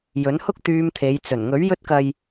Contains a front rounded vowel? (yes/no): yes